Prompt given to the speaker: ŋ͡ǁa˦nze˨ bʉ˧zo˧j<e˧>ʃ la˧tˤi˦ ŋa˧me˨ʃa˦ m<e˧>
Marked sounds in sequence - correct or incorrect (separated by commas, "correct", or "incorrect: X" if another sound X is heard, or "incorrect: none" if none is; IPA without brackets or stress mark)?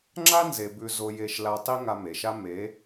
correct, incorrect: e˨˦